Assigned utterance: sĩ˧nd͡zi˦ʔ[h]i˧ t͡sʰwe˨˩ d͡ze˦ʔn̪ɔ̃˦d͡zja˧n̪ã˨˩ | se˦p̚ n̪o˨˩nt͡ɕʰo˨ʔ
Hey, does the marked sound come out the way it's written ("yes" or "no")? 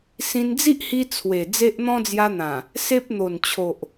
yes